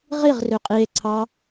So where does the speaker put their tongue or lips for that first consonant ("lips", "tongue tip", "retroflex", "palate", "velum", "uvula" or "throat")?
uvula